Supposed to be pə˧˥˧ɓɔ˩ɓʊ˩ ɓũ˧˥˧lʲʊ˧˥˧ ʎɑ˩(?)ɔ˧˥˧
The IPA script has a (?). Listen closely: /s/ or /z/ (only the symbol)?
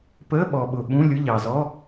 z